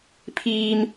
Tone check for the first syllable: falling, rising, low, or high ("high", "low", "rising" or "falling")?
high